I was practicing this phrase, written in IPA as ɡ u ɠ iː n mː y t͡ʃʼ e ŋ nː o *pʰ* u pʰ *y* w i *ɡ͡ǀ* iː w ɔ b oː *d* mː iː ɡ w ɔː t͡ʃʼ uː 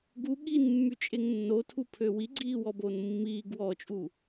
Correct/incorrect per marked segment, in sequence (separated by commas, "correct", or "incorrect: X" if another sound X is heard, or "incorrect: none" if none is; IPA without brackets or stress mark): incorrect: tʰ, incorrect: ø, correct, incorrect: n